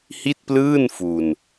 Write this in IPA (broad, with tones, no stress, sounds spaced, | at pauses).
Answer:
h i˥˩ t̚ p l ɯː˥˩ n f u˧ n